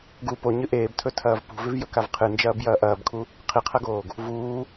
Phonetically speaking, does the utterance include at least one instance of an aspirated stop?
yes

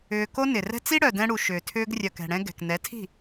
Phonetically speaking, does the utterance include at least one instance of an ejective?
no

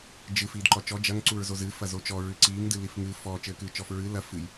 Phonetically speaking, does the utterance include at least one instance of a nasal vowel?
no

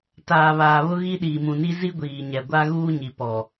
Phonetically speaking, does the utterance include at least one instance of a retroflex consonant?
no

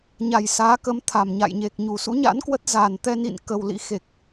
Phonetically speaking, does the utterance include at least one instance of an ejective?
no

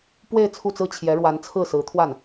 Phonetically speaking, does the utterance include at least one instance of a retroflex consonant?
yes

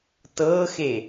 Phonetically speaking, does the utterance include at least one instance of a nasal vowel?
no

